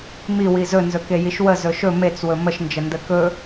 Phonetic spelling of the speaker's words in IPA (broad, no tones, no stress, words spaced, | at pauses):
miwi zɵnzɵ kejiʃwə zɵʃɵ met͡swɵ məʃnd͡ʒə ndəkɵ